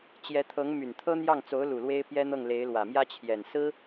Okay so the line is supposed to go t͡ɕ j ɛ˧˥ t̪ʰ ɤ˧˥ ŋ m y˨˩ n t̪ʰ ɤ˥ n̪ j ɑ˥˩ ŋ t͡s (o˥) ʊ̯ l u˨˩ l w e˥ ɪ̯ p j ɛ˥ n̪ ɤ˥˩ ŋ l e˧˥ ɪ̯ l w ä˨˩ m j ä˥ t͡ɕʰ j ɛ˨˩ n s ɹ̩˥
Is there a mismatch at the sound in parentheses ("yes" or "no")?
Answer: yes